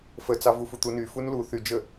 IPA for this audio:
f ə t͡s ɑ v u f u t̪ u n y f u n l u θ y d͡ʒ ə

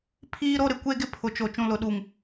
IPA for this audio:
pʰ iː˦ ɾ o˦ ɾ ɪ˨ kʷ e˦ ɡ ɪ˦ pʰ ʊ˨ t͡ʃ o˨ t͡ʃ ũ˨ l ʊ˨ ɗ u˨ ŋ

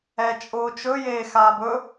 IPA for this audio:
ɛ t͡ʃʼ ʊː t͡ʃ ɵ j eː x aː b ɵ

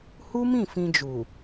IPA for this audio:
h u˦ m ĩ˦˨ f ĩ˧ d͡ʒ u˨

